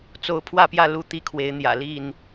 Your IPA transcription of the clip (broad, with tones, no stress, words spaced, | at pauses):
t͡so˨˦ʊ̯pʰwä˥˨pjä˥˨ lu˥˨t̪i˦kʰwe˨˦ɪ̯n̪jä̰˨˩ li˥˨n